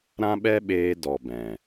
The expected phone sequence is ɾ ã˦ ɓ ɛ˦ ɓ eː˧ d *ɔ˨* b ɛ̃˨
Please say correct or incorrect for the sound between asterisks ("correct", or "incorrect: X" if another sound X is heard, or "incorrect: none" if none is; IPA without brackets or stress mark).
correct